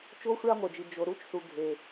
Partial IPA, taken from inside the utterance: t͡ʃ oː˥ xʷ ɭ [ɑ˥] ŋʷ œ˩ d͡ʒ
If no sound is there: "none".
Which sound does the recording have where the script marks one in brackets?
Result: ɑ˥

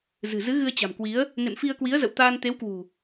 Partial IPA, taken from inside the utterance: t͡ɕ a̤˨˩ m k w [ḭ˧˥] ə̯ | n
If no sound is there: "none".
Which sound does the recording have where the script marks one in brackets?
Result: i˨˦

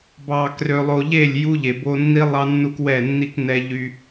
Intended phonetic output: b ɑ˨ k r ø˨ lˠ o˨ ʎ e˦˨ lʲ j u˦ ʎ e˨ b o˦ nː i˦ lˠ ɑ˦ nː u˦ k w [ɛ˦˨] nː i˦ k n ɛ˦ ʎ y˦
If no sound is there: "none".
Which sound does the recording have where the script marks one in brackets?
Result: ɛ˦˨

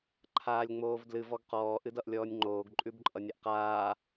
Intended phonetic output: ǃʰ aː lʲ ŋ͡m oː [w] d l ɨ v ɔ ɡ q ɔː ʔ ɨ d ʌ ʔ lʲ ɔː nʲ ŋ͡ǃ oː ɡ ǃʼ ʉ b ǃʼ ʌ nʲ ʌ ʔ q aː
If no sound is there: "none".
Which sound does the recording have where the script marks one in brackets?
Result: v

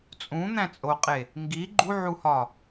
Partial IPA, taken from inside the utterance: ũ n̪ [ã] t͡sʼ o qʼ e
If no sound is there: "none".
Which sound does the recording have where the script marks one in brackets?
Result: æ̃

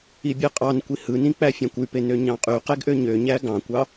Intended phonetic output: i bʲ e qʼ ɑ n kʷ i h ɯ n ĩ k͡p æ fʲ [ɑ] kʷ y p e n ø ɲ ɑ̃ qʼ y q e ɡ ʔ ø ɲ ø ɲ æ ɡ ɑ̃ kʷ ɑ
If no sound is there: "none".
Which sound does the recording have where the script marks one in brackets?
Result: ɑ̃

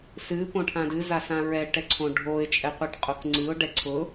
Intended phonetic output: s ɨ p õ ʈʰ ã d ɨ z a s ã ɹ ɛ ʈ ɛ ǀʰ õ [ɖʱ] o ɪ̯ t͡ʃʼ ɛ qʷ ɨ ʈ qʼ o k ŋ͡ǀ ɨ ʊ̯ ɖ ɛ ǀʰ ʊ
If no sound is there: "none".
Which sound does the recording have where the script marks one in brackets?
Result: ɖʱ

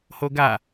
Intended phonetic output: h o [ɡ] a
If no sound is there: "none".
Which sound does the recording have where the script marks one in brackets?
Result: ɡ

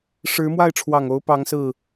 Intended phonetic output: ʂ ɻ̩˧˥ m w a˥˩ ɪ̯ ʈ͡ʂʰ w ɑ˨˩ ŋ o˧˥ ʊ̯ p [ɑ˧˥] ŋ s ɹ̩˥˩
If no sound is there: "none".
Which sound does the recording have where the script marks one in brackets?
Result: ɑ˧˥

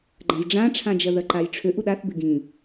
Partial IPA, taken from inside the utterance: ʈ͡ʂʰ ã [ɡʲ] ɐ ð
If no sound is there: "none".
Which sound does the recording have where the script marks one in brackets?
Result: d͡ʒ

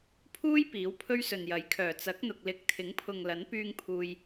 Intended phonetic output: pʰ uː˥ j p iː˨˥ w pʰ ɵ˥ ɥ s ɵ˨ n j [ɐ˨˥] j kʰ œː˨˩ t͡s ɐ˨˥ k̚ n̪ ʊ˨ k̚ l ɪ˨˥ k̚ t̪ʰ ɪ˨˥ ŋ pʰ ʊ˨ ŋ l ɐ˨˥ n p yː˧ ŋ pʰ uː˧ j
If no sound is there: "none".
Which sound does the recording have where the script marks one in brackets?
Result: ɐ˨˥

